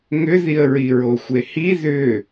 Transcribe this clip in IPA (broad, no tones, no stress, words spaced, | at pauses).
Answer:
ŋʏðiə̯ ɹiɹoxʷehi ðʏ